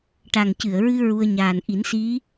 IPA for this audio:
ʈ a˨˩ ŋ c ɨ˨˩˨ ə̯ ɹ ɨ˧ ɹ u˧ ə̯ ɲ aː˨˩ n ʔ i˨˩˦ n s i˧˥

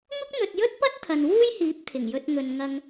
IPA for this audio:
ŋ ʊ˥ k̚ n̪ ɵ˨ t̚ j ɵ˥ t̚ p ɐ˥ t̚ t̪ʰ ɐ˨ n w uː˥ j h iː˨˥ p̚ t̪ʰ ɪ˨˩ ŋ j ɵ˧ t̚ ŋ ɵ˨ n ŋ ɐ˧ ŋ

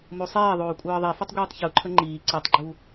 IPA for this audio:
m o sˤ eː ðˤ oː kʷʼ ɤː ðˤ i f ə tˤ ɡʷ iː tˤ ç u ǃʰ ə ŋ͡ǃ iː ǀ i tˤ ɡ͡ǃ u

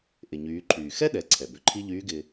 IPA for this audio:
ʔ ɪ˩ ɲ yː˩˧ ǃʰ yː˩ x ɛ˥ ɗ ɛ˩˧ ǀʰ ɛ˩ b ʏ˩˧ ǃʰ i˥ ʎ yː˧˥ ɡ ɪː˧

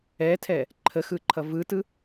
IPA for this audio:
ɛ tʰ ɛ | ǃʰ ə x ɯ ǃʰ ʌ v ɯ t ɯ

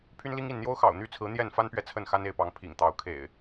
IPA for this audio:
pʰ y˦ n l i˦ ŋ i˥˨ n n̪ j o˦ ʊ̯ x ɑ̰˨˩ ʊ̯ n̪ y˥˨ t͡sʰ ɹ̩˨˦ n̪ j ɛ˥˨ n f a˦ n p ɥ ɛ˨ t͡sʰ ə˥˨ n x a˦ n e˥˨ ɪ̯ p ɑ˨˦ ŋ pʰ ḭ˨˩ ŋ t̪ ɑ˨˦ ʊ̯ kʰ ḛ˨˩ ɪ̯

